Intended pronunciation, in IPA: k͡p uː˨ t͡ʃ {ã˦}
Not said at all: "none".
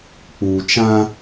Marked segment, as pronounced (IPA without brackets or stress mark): ã˦